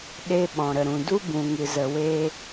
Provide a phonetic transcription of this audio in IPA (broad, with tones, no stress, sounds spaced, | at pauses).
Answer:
ɗ e˧ ɓ ɔ̃˨ ɾ ə˨ ɾ ũ˨ d u˦ b ũ˨ ŋ ɨ˨ z ə˨ w e˧